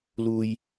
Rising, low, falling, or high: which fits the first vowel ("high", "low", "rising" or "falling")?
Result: low